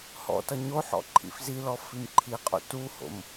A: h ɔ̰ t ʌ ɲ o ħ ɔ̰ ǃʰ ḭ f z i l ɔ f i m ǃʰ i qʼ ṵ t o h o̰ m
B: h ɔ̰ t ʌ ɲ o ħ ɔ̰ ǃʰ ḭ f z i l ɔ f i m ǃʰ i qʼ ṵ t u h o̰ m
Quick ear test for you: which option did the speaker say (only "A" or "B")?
B